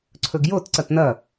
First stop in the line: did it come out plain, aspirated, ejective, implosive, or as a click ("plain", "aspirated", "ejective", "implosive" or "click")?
click